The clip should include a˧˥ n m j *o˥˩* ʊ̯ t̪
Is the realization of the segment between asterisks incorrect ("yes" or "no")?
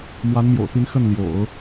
yes